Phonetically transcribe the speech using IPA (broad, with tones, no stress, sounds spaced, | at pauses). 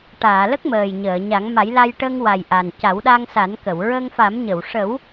ʈ aː˨˩˨ l ə˦˥ k̚ m əː˨˩ j ɲ əː˨˩˨ ɲ a˨˩˦ ŋ m a˨˩˦ j l a˧ j ʈ ə˧ ŋ w a˨˩ j ʔ a˨˩ n c a˨˩˦ w ɗ a˧ ŋ s a˨˩˦ n k ə˨˩˨ w ɹ ə˧ ŋ f a˨˩˦ m ɲ ə˨˩˨ w ʂ ə˨˩˦ w